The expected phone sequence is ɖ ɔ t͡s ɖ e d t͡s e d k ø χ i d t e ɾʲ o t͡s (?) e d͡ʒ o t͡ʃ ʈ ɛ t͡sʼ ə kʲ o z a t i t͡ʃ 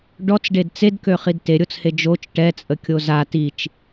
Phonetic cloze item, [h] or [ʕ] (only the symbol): h